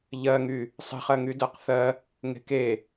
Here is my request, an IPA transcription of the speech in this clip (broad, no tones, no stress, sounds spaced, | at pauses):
ʎ ɜ ŋ y | sˤ e̤ χ ɜ ŋ y d ɜ q θ ɜ | ŋ e̤ k e